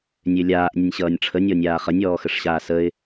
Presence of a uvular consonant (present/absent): present